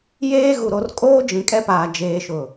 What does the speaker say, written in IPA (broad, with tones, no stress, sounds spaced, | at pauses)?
j eː˦ ɣ u˨ ɾ o˨ r kʼ oː˦ d͡ʒ ĩ˨ kʼ ɛ˦ p aː˨ d͡ʒ eː˨ ʃ ʊ˨